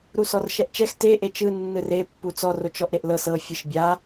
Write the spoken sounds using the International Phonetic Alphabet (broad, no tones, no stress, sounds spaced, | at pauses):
ɾ u s ɔ r ʃ ɛ ʔ t͡ʃ ɛ x t e ʔ e t͡ʃ ɯ nː ɯ r e pː u t͡s ɔ r o t͡ʃ ɔ ʔ ɾ e ʔ l ɤ s ɤ fʲ ɯ ʃ bʲ a